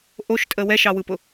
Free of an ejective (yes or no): no